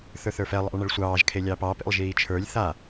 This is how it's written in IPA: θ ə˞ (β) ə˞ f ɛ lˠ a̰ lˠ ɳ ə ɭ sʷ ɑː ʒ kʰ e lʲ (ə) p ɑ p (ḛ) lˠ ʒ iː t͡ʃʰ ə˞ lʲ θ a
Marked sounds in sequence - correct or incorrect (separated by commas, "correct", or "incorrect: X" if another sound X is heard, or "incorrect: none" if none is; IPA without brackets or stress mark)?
incorrect: θ, incorrect: ɑ, correct